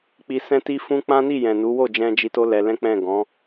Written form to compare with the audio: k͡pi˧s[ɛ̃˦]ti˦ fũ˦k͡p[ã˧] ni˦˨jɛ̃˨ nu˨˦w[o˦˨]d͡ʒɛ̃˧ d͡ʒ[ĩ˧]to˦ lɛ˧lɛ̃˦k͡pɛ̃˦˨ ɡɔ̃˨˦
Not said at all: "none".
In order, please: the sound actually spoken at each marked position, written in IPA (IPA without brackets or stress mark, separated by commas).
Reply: ɛ̃˦, ã˦, o˦˨, i˧